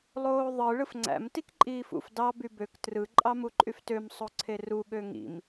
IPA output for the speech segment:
lˠ oː ðˤ ɯ ɭ ɯ f ŋ͡ǀ æ̰ m t i k ǃʼ iː f ṵ f d ɑ b y b ø k t r ɯ ǃʼ ɑ m u ǃʼ y f t ø m sˤ o ǀʰ e r u ɠ ø ŋ ḭ m

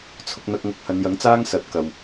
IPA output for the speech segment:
t͡sʰ ʊ˧ k̚ n̪ ɐ˧ k̚ ŋ ɐ˧ k̚ h ɐ˨˧ n j ɐ˨˥ ŋ t͡s aː˥ ŋ s ɐ˨˥ t̚ k ɐ˨ w

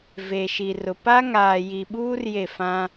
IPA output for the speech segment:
v e˨ ʃ i˨ r ʊ˨ p a˦ ŋ aː˨ j i˨ ɓ uː˦ r j e˦˨ f ã˦

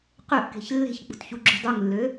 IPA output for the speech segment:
q ø ʔ k e̤ ç lː e̤ ç k͡p ṳ t ç u ɡ͡ǁ ṳ dˤ u ŋ lː ø

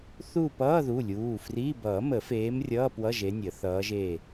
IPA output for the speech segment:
θ uː˦˨ p ʌː˧˥˧ ð u˩˧˩ lʲ uː˩˧˩ f r iː˧˥˧ b ʌː˨˩˦ m ə˨˩˦ f eː˨˦ m rʲ ʌː˧˥˧ p w ʌ˧˥˧ ʒ e˨˦ nʲ ə˨˩˦ θ ʌː˨˦ ʒ e˦˨

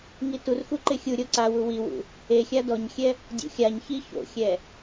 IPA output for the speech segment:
ŋ i t u r x u ǃ ɪ xʲ u ɾʲ o ǀ a w u w i w ṵ | e xʲ a d ɔ ɲ xʲ ɛ | dʲ ṵ xʲ a ɲ ç i ç o̰ xʲ ɛ

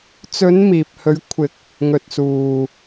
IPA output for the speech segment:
t͡s ɵ˨˧ n m iː˨ p̚ h ɵ˨˧ ɥ kʷʰ ɪ˨˥ k̚ | ŋ ɵ˨ t̚ s uː˨

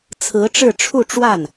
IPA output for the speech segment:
t͡sʰ ɹ̩˧˥ ʈ͡ʂ ɻ̩˥˧ ʈ͡ʂʰ u˥˧ ʈ͡ʂ w a˥˩ n

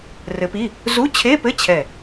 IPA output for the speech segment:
r ɘ˨˥ p i˧˥˧ | z u˧˥˧ t͡ɕʰ e˧˥˧ p ɘ˧˥˧ t͡ɕʰ ɛ˧˩

